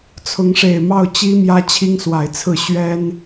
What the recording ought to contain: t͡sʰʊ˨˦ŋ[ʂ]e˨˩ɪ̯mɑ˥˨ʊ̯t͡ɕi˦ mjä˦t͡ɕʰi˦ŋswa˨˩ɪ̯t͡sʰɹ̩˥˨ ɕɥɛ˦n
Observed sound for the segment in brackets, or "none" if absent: ʂ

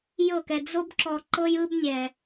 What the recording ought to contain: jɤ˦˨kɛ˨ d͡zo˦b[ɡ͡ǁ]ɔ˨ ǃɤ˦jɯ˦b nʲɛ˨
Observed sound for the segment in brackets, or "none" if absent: ǁ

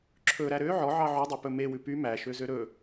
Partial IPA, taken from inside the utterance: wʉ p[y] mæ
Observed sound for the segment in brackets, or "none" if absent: y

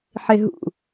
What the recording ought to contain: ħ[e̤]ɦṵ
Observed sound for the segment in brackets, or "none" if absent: e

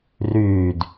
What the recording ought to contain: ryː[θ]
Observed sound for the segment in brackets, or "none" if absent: d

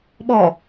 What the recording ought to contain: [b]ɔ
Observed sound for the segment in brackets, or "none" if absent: ɓ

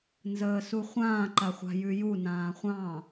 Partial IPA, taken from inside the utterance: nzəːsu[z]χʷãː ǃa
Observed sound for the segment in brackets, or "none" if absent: none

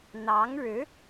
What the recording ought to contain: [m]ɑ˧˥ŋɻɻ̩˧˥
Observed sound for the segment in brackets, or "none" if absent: n̪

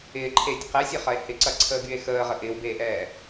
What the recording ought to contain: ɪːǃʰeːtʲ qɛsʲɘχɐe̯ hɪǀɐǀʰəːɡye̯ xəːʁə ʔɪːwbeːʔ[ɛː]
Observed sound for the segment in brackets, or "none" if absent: ɛː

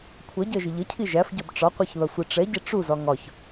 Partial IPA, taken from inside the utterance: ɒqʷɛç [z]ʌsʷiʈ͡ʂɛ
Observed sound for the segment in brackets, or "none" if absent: ð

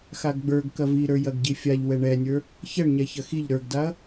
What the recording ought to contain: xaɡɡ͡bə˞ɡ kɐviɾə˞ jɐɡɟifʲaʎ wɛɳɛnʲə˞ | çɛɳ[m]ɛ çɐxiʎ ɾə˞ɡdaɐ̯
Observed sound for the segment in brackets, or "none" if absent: ɲ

